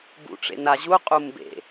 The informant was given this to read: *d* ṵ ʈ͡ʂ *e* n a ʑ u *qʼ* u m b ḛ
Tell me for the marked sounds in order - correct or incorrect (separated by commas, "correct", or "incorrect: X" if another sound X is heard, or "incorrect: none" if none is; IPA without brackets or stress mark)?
incorrect: b, incorrect: ḛ, correct